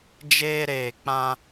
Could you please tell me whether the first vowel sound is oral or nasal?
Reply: oral